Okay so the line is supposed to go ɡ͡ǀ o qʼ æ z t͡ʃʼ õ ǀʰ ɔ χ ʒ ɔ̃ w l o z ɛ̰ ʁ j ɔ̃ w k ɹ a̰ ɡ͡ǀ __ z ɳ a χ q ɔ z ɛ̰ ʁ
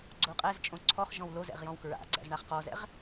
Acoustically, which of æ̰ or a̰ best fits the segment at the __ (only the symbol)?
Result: æ̰